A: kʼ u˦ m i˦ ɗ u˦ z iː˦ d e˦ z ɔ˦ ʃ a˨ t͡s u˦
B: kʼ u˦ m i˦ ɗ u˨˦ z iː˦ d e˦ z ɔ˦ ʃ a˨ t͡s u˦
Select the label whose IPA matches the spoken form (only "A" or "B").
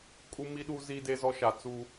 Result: A